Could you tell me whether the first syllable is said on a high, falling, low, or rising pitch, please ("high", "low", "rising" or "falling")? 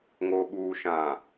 low